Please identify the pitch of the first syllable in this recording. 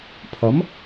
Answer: rising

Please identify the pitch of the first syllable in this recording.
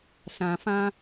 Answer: low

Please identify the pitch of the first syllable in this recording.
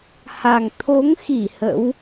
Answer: low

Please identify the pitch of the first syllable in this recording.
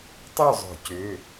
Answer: falling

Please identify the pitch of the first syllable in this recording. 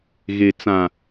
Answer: low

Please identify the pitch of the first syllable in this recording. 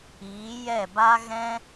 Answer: rising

